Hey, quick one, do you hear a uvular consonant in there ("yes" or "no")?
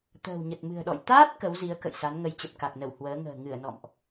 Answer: no